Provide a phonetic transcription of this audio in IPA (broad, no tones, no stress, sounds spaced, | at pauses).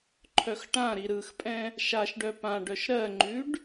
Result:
ǃʰ œ x ʈ ã ɾ i ɾ ɯ x pʼ ɛ̃ | ʃ a ʃ ɖ œ p ã ɖ œ ʃ ɾ ɜ ŋ͡ǃ ʉ ɖ